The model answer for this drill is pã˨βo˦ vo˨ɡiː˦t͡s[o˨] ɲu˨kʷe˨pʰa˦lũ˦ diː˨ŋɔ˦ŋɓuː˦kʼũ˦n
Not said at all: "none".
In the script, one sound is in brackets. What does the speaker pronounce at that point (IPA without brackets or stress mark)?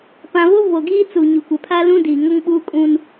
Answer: u˨